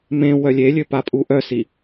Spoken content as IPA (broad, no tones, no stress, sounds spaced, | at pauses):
m ẽ w œ lʲ e lʲ ø p a pʼ u ʔ œ s i